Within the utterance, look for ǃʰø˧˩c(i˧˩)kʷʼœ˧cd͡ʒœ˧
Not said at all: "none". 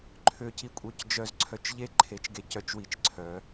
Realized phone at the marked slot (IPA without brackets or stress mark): i˧